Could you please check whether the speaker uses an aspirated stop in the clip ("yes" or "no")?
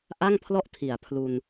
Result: yes